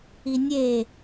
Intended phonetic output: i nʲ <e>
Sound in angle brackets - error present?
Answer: no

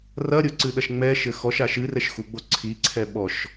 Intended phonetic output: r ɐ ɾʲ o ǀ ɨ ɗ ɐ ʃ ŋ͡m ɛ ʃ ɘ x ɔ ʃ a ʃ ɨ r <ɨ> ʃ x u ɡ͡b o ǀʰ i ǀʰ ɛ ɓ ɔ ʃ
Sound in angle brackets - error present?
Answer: yes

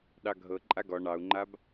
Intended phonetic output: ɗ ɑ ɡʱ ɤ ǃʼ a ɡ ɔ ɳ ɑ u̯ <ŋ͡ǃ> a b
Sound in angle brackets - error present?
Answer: no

